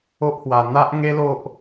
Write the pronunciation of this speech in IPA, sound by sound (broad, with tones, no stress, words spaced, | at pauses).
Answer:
o˦ʔhwa˧ n̪a˦ʔ ŋe˦lo˦ʔ